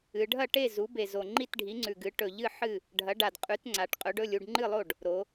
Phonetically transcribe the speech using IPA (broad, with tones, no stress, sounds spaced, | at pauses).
ɨ˩˧ ɖʱ ɐ˥˩ ʈ e˥˩ z u˩˥ b e˨˩ z o˨˩ ŋ͡ǃ i˥˩ t ɖʱ i˩˥ ŋ͡ǀ ʉ˨˩ ɡ ɨ˩˥ ʈ ɵ˨˩ ʎ ɨ˥˩ ħ ɨ˥˩ | ɖʱ ɐ˩˥ ɖ a˨˩ d qʼ ʉ˩˥ t ŋ͡ǀ a˩˧ ʈ qʼ ɵ˩˥ ɖ ɵ˥˩ lʲ u˥˩ ɖ ŋ͡ǃ ɨ˥˩ lˠ o˥˩ ɖ | ɾ o˩˧